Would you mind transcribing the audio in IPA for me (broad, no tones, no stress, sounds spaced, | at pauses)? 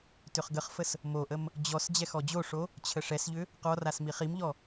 t ʏ χ ɡ ə χ f ə s | m o ʔ ə m | d͡ʑ ɔ s d͡ʑ ɛ x ɔ d͡ʑ o ʂ o | t͡ɕʰ ə ʂ ɛ s ʎ ʏ | q ɔ r a s m i χ i m ʎ ɔ